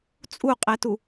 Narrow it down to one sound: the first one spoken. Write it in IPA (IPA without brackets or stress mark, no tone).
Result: t͡sʼ